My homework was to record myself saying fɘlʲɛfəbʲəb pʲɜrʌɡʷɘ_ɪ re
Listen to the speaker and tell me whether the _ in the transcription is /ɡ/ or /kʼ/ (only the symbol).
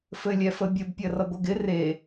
ɡ